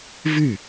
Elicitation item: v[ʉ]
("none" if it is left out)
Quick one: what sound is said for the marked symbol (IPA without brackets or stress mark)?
ʉ